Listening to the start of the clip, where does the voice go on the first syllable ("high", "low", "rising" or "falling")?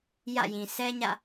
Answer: falling